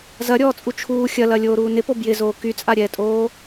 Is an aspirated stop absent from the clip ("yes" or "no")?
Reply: no